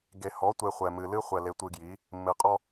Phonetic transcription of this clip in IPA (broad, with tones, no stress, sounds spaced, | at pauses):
ɡ e˨ h ɔ˨˦ tʷ e˨ χʷ ɛ˨ m ɨ˨ l ɨ˦ χʷ ɛ˨ l e˨˦ tʷ ɨ˨ ɡ j i˨˦ | mː ɨ˨ qʼ ɔ˦